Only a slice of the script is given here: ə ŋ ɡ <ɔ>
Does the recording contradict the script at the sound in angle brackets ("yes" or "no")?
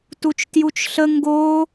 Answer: yes